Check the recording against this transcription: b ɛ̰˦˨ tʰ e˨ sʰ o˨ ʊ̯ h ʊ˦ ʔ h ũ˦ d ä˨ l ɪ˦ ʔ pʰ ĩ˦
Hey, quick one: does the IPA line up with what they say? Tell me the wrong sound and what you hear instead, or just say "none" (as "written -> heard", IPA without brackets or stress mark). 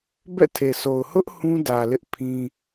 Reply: none